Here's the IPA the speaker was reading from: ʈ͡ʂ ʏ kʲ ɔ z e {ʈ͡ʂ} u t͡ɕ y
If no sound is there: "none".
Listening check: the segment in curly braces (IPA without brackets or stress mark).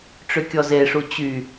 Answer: ʂ